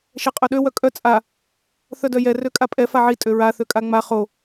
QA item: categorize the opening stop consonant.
ejective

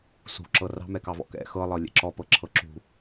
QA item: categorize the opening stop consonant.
click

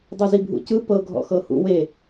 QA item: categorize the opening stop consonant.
plain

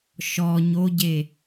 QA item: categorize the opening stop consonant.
plain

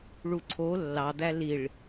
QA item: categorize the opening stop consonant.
click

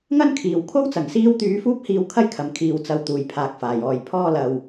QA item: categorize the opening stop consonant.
aspirated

